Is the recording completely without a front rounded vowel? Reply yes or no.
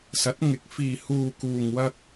yes